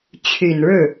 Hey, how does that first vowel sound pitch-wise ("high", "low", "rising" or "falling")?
low